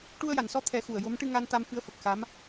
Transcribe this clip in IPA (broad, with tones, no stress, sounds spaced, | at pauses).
ʈ u˧ ə̯ j a˨˩˨ n s ɔ˧ t̪ʰ ɛ˨˩˦ x u˨˩ ə̯ j o˧˥ m ʈ ɨ˧ ŋ a˧ n t̪ a˧ m f ɨ˧˥ ə̯ f ə˨˩ k̚ x a˧˥ m